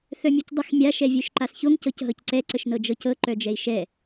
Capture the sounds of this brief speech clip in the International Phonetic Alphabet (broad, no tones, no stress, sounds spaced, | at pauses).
θ œ mʲ œ c dˤ ə x mʲ a ʃ ɛ vʲ œ ʃ ǃ a s ç o ŋ c ɤ c ɦ ɤ c ǀ ɛ ǀ ə ʃ n ɤ d͡ʒ ɤ c ɤ ǃ œ d͡ʒ ɛ i̯ ʃ ɛ